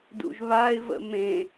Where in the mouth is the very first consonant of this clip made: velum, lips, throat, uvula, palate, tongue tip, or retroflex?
tongue tip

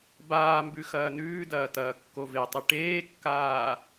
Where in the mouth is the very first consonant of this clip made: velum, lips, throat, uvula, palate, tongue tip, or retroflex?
lips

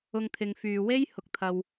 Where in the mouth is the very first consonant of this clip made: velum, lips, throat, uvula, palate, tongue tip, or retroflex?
velum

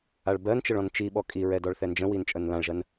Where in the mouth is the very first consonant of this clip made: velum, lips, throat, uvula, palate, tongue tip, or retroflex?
retroflex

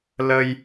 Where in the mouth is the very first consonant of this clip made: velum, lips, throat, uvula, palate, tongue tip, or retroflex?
tongue tip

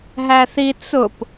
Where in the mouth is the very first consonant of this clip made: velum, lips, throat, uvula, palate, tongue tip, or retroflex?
throat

